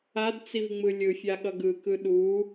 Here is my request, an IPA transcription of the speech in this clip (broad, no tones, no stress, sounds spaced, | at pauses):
a d t͡s i v ŋ͡m ɯ lʲ ɯ fʲ a ɠ ʌ ɡ ɯ k ɯ ɗ u